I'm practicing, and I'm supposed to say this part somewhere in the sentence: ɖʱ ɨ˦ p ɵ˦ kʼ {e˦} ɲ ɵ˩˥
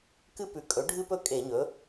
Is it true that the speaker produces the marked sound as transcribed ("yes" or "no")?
no